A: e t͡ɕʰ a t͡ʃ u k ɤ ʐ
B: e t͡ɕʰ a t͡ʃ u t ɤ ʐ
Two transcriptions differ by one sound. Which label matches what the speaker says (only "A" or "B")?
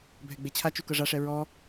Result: A